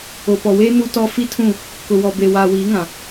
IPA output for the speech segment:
o˨ p ɔ˨ w eː˦ n u˦ t ɔ˦ f i˦ tʰ ũ˦˨ | k ʊ˨ w ɔ˨ b e˨ w aː˨ w iː˨˦ ŋ ã˨

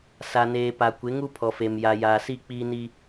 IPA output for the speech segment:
s a˨ n eː˨ p a˨ kʷ ɪ˨˦ ŋ u˦ pʰ ɔ˨ f e˨ m j a˨ j aː˨ s i˦˨ k͡p iː˦ n i˦

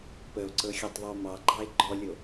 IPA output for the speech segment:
p ə o̯ ǀ ɤ xʲ ɔ tˤ ðˤ ə o̯ m ɑ ɡ͡ǃ ɑ e̯ ɡ͡ǃ ɔ lʲ o

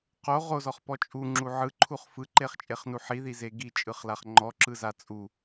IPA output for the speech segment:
q o ʁ o z ɔ χ p ɔ t͡ʃʼ u ŋ͡ǁ u ʕ ɯ ǃʰ u χ f ɯ ǃ e χ t͡ʃʼ e χ n u ħ i ð i z e ɡ i t͡ʃʼ ɯ χ l a χ ŋ͡ǃ ɔ ǁ ɯ z a t͡sʼ u

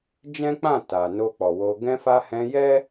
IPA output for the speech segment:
d͡ʒ ɛ̃˦ k͡p ã˦˨ t a˨ n o˧ k͡p ɔ˨ w o˧ ɡ ɛ̃˧ f a˧ h ɛ̃˧ j ɛ˦

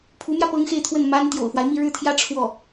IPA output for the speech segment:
pʰ u˧˥ m j ä˧ p ɤ˥ ŋ x e˥˧ ɪ̯ t̪ʰ w ə˥˩ n m a˥ n t̪ j o̰˨˩ ʊ̯ f w a˦ ɪ̯ m i˥˧ ɻ ɻ̩˥˩ t̪ʰ j ä˥ ʈ͡ʂʰ w ɔ˥˩

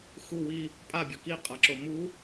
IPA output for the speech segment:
x u w i | pʼ a bʲ ɤ k i qʼ a ǁ o m u

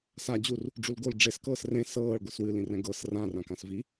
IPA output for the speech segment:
s a d͡ʑ u r | ɖ͡ʐ u l ɡ o l ɖ͡ʐ e s k ɤː s r ẽ s ɤː ɭ ɡʷ ɨ s w ɨ l ĩ r ɛ̃ ɡ ɤ s r ã r ã k ã s v i

